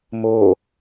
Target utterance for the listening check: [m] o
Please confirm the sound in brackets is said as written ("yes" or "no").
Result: yes